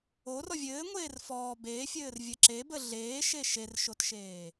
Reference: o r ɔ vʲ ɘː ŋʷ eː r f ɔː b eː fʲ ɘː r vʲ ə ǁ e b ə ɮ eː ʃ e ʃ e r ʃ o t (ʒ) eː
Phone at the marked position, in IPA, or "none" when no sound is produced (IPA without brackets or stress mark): ʃ